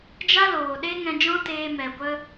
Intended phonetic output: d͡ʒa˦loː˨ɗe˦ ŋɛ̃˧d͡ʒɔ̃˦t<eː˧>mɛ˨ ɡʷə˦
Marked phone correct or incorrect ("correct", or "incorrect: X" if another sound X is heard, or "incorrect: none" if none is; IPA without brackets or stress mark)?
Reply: correct